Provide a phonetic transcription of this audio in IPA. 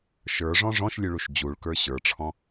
ʃ ə˞ ʐ ɔ̃ ʐ ɔ̃ ʃ lʲ ʉ ɭ u ʃ d͡ʑ u ɭ k ə˞ ɕ ə˞ ʈ͡ʂʰ ɔ̃

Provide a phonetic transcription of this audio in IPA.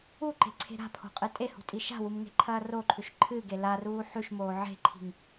u ǃ e̤ ǀʰ e̤ ɾ a̤ pʰ o̤ qʼ ɨ tʼ e h ṳ tʼ i ʃ a̤ w u m ŋ e̤ ǃʰ ɐː r o ǃʰ ʉ ʃ ǃʰ ɨ ɡ e l a r uː ħ ʉ ʃ m oː ʕ e̤ ǃʰ i̤ ŋ

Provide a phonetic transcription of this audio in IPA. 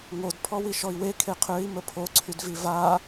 ŋ o d pʰ ɔ w i ʃ ɔ i̯ w e kʰ e qʰ ø i̯ m ə pʰ o ǀʰ y d v i v a

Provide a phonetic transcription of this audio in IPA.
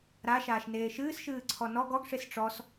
ɾ a ʃ aː ʃ n eː ʃ ɨː s ʃ ɨː ǀʰ ɔ n ɔ ɡ ɔ ɡ ʂ e s ʈ͡ʂ ɔ s

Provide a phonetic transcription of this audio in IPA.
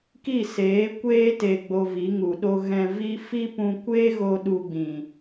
k i˦˨ s eː˨˦ kʷ eː˦ t e˨ ɡ͡b o˨ v i˨˦ ŋ u˨ ɗ o˦ ɣ ɛ̃˧ v i˦ f i˦ p ũ˧ kʷ eː˦ ɣ o˧ ɗ u˧ ɡ͡b ĩ˨

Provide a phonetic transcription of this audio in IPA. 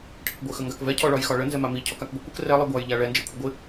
ʈʰ ɪ k ɡʷ ɪ x ə ŋ ɡ a k v ɛ cʰ ɔ ɭ ɒ j x ɒ ɭ ə n z ɛ m a m i cʰ ɔ k a k ɡʷ ɪ kʷ ə k r ɛ lˠ i ɡʷ a j ʎ a ɭ ɛ n d͡ʒ ɛ kʷʰ ə ɡʷ ɪ

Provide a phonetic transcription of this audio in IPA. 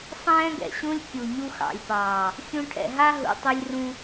sˤ ɛ̃ː˦ ɡ ɛ̰˨ ɕ ũ˦ lʲ kʲ u˨ ɲ u˧ x ɑ̰˨ lʲ p ɑː˨ | xʲ ũ˧ ʈʰ ɛ̰˨ ɦ a˦ ɦ ṵ˨ tˤ ɛ˧ lʲ r ũ˧

